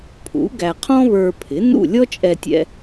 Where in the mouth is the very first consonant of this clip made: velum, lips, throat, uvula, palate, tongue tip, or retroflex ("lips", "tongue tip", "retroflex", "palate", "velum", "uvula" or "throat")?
lips